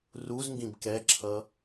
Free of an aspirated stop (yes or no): no